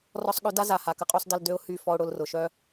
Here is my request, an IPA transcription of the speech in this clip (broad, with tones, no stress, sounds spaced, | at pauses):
r ɔ˧ sˤ ɠ ø˨˦ d a˦ z a˨ h a˨ k ə˦ qʼ o˦ sˤ d ɐ˧ l d ø˧ ʊ̯ h y˦˨ f ɔ˧ ʊ̯ ɽ ʊ˧ l r ʊ˨ ʃ œ˦